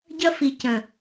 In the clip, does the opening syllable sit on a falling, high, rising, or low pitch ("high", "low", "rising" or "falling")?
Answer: high